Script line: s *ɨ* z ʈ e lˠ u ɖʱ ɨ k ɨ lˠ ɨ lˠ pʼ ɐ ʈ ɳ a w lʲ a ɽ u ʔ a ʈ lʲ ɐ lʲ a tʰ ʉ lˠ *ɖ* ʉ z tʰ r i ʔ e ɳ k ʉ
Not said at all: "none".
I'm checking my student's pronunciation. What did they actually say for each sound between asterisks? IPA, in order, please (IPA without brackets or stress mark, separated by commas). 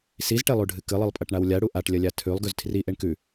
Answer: i, ɡ